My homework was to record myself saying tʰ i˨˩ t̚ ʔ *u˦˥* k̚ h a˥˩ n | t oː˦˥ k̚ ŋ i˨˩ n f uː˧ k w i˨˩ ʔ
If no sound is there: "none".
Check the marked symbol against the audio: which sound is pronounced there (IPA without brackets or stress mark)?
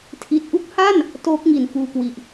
u˥˩